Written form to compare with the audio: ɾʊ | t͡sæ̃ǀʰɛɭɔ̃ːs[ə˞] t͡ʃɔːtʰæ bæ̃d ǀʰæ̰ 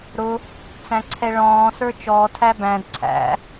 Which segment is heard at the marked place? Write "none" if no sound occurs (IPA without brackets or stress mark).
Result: ə˞